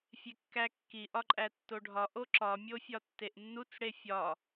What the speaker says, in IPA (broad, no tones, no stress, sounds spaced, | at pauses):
fʲ e kː æ kː i ʔ ɒ ǃʼ æ tː o ɖʱ ɒ ʔ o ǁ ɒ mʲ o fʲ ɒ tː e ʔ nː u t͡s ɽ e fʲ ɒ